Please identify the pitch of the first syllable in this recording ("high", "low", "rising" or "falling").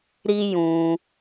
high